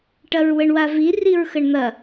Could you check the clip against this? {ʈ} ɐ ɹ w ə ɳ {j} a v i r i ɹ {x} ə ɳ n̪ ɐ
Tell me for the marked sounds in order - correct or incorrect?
correct, incorrect, correct

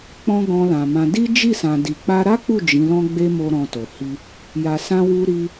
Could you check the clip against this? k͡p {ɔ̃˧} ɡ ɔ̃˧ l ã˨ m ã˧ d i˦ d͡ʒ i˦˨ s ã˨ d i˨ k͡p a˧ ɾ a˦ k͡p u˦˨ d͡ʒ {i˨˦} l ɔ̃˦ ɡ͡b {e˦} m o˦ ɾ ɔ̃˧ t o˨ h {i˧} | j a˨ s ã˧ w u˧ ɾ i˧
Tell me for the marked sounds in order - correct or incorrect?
incorrect, incorrect, correct, correct

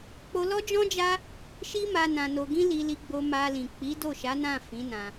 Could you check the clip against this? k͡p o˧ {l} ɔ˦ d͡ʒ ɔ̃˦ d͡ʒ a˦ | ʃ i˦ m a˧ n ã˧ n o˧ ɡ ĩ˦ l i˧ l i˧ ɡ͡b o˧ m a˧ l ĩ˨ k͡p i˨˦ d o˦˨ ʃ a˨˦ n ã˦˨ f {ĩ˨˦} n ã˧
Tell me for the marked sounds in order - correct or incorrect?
correct, correct

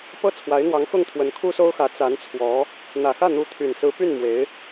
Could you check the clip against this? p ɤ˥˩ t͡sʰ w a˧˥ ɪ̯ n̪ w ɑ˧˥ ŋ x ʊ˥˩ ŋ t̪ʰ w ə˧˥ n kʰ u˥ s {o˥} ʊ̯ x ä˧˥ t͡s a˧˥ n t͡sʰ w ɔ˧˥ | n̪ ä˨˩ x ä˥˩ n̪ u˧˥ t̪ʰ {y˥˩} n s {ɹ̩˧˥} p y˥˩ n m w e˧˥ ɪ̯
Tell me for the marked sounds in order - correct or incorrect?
correct, incorrect, correct

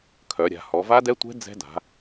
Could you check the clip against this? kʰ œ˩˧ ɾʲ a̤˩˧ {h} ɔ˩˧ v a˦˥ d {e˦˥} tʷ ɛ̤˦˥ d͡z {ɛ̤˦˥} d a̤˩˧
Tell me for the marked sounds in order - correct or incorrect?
correct, incorrect, correct

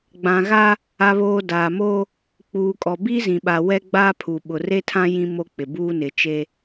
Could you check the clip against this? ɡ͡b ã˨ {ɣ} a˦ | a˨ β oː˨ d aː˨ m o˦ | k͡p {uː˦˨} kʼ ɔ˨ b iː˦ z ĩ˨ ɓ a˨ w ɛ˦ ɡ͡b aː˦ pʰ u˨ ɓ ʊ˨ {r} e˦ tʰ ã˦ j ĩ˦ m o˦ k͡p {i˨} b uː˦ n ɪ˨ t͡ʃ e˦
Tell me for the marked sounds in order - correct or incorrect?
correct, incorrect, correct, incorrect

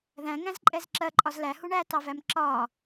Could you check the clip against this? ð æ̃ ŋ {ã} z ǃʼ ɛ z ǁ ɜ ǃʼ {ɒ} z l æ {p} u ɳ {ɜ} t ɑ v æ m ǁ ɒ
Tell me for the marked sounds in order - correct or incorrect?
incorrect, correct, incorrect, incorrect

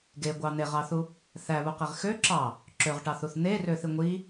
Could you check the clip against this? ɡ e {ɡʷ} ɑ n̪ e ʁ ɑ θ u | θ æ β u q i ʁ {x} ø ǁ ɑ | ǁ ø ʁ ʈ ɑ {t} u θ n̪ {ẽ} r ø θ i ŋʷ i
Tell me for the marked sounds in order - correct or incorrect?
correct, correct, incorrect, incorrect

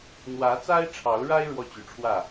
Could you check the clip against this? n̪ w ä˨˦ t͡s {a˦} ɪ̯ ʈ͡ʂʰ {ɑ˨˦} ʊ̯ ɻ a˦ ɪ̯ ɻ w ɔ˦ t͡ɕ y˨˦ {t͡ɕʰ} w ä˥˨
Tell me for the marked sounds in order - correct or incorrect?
correct, correct, incorrect

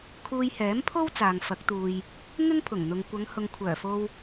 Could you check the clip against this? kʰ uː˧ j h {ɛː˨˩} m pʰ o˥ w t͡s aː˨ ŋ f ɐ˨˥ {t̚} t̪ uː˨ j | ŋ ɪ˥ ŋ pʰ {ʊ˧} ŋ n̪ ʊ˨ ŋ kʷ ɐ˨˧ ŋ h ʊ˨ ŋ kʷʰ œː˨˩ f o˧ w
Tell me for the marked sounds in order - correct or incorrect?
incorrect, incorrect, incorrect

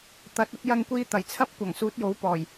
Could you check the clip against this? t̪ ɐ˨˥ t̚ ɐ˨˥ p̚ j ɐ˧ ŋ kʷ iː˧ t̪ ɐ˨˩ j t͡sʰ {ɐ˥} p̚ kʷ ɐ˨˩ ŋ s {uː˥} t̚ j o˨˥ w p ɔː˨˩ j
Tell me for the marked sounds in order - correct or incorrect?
correct, incorrect

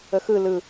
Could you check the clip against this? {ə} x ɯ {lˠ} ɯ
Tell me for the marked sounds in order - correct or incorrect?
correct, incorrect

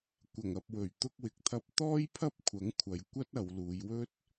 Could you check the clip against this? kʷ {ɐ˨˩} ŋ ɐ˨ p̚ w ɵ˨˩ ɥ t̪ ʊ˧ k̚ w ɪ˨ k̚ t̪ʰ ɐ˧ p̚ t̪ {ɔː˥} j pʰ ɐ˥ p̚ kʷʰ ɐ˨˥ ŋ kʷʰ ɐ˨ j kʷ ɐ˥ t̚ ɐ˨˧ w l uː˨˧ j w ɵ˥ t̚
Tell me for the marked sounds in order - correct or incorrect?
correct, correct

